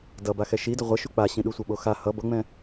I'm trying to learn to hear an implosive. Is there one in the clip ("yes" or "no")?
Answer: yes